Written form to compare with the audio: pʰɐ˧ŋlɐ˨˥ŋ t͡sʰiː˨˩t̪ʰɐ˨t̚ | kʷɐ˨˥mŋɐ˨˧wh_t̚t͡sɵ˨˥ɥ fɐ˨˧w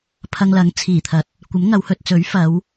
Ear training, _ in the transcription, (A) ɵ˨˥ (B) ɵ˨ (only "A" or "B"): B